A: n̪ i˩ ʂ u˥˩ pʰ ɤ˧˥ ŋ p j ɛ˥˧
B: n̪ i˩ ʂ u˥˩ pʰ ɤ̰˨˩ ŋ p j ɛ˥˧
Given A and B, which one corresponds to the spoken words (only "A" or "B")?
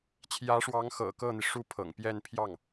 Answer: B